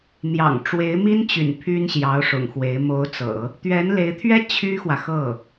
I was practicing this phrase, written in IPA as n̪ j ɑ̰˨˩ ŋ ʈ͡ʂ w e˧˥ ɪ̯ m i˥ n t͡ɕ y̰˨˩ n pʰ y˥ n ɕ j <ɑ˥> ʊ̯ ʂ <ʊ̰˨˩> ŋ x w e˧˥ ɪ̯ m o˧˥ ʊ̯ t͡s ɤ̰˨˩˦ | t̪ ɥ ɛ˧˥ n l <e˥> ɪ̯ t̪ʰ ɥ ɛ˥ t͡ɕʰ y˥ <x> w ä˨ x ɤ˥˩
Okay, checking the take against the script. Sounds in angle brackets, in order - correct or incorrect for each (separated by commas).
incorrect, correct, incorrect, correct